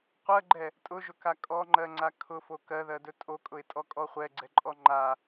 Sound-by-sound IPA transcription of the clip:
qʷ ɜ ɡ͡ǃ ɛ | tʼ ʊ ʒ ʊ k a kʼ ɔ ŋ͡ǃ ɜ ŋ͡ǀ a kʰ ʊ f o k ɜ ð ɜ d ɵ tʼ o kʼ ʊ ɪ̯ tʼ ɔ kʼ ɔ χʷ ɛ ɡ͡ǀ ɛ ǃʼ ɔ ŋ͡ǃ a

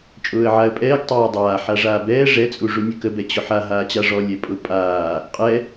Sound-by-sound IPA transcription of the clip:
t͡ʃʼ ʊː ə̯ ʕ a ə̯ pʼ ɛː ɡ tˤ ɛː dˤ aː ħ a ʐ aː b ɛː ʐ ɛ t͡sʼ u ʐ u nʲ ə k ə b ɛ t͡ɕ ʊ ħ a ɦ aː t͡ɕ a ʐ ɔ lʲ ɛ pʼ ʊ pʼ aː | qʼ ɛ

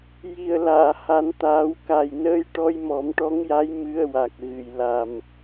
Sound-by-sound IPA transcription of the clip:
j i˨˩ ə̯ l aː˨˩˨ h a˨˩˦ n t̪ aː˨˩˦ w k a˨˩ j n əː˧ j ʈ ɔ˧ j m ɔ˨˩˦ m ʈ ɔ˧˥ ŋ j a˧˥ j m ɨ˧ ə̯ w a˨˩ k̚ ɣ ɨ˨˩ j l a˨˩ m

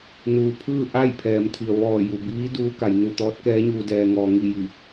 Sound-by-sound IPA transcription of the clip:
n uː˩ pʰ ɯː˥˨ ʔ a˥˨ j pʰ ɛː˩˧ m t̪ʰ i˩ ə̯ ʋ ɔː˧˩ j u˩ b iː˧˥ d uː˧˥ k a˩˧ j n u˧˩ t̪ ɔː˧˥ t̚ k ɛː˧˥ ɲ uː˧ d ɛː˧ ŋ ɔː˧ ŋ i˥˨ j i˧˩

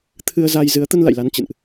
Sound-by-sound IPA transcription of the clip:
t̪ʰ ɨ˧ ə̯ z a˧ j z ɨ˨˦ ə̯ t̪ ə˧ n l a̰˧˨ j l a˨˦ n t͡ɕ ɨ̰˧˨ n ʔ

